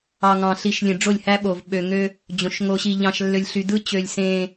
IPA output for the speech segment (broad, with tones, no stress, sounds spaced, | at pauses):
ɑ˨ ŋ ɑ̃˨ ɬ i˨ ʃ lʲ ẽ˨ ɖ͡ʐ o˦˨ lʲ h æ˦ ɓ o˨ v ɓ ø˨ ŋ ø˦ | d͡ʑ õ˨ ʃ ŋ o˨ ɕ i˨ ʎ ɑ̃˨ ʃ lː ø˨ lʲ ɬ y˨ d ɯ˦ t͡ɕ ø˨ lʲ s ẽ˦